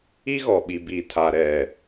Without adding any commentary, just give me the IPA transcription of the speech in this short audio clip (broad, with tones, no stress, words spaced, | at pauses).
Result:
i˦ɣɔ˨ɓi˨ bi˨tʰa˨ɾɛ˨